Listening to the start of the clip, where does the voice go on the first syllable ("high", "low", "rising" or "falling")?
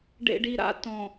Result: low